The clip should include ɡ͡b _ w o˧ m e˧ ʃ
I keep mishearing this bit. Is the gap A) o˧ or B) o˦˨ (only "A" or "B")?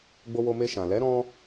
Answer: A